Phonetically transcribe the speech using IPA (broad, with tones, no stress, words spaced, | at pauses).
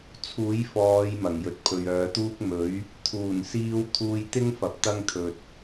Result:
t͡sʰuː˨˥jfɔː˨˧j mɐ˨˩ŋjɵ˨t̚ pʰɵ˨ɥœː˨˧t̪uː˥k̚ mɵ˨˥ɥ | t̪ʰuː˨˩nsiː˧wt̪ʰuː˧jt̪ɪ˥ŋ fɐ˨˥p̚ t̪ɐ˥ŋt̪ʰɵ˨t̚